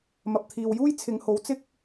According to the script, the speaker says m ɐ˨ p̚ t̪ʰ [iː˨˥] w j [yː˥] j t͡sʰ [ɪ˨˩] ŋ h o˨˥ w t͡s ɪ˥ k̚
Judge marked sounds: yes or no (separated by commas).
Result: no, no, no